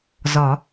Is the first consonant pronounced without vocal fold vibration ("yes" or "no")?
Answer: no